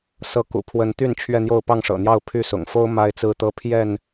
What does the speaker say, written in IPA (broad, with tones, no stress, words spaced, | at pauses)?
sɤ˨˦kṵ˨˩ pʰwə˨˦nt̪y˥˨n t͡ɕʰɥɛ˥˨n̪jo˥˨ʊ̯ pɑ˥˨ŋʂɤ̰˨˩n̪jɑ˥˨ʊ̯ pʰy˥˨sʊ̰˨˩ŋ fo˦ʊ̯ ma˦ɪ̯t͡sɹ̩˦t̪ɤ˦pʰjɛ˥˨n